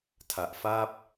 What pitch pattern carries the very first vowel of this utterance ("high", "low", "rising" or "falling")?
low